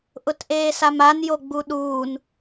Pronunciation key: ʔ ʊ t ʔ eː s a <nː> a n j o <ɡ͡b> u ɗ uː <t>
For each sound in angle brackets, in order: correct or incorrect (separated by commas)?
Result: incorrect, correct, incorrect